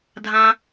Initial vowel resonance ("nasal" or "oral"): nasal